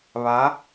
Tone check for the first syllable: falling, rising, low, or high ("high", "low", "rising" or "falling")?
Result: rising